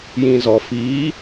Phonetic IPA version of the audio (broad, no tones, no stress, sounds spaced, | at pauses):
j ĩ z ɔ f i